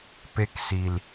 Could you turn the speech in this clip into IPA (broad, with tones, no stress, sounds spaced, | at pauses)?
p e˧ k s i˨ l